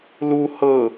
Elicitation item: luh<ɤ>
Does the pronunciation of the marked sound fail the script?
no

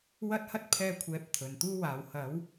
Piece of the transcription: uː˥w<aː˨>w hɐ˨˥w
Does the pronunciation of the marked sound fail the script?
yes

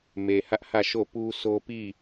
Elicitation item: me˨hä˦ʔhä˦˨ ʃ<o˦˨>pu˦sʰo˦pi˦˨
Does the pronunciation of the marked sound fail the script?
no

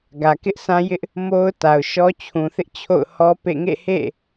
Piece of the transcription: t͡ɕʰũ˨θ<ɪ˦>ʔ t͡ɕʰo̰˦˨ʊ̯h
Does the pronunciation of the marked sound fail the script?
no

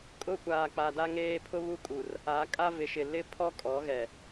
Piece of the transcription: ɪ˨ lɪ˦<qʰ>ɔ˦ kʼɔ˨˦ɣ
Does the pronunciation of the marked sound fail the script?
yes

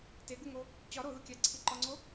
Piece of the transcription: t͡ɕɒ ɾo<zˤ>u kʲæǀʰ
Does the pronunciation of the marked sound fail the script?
yes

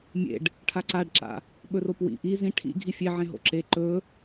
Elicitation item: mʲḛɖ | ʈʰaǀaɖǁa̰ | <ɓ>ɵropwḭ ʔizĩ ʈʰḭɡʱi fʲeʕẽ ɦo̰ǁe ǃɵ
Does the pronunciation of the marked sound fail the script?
no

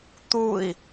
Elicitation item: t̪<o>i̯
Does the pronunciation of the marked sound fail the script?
yes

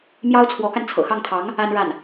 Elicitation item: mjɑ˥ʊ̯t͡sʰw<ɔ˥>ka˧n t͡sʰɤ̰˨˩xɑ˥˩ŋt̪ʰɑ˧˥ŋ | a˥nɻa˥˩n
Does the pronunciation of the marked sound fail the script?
yes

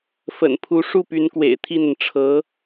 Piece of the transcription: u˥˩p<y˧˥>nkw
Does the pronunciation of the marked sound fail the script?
no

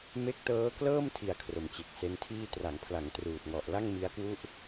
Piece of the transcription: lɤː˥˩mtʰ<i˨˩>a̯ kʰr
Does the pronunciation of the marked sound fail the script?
no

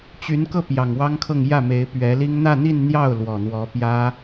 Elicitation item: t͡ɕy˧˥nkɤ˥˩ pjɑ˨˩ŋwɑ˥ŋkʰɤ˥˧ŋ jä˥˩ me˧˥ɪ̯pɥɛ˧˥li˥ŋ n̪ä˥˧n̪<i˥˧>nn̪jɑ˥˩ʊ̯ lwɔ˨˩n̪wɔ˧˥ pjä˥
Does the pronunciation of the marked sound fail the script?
no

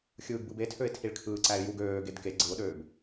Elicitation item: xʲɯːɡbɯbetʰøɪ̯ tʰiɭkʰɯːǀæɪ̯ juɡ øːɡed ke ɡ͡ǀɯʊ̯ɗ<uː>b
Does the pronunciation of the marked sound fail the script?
yes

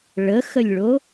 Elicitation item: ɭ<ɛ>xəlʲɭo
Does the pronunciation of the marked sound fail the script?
yes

